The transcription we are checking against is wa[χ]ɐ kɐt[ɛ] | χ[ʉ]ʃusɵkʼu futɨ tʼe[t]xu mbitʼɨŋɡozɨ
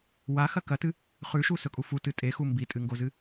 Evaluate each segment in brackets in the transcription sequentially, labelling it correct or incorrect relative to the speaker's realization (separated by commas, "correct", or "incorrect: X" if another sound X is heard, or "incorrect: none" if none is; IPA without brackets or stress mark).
incorrect: x, incorrect: ɨ, correct, incorrect: none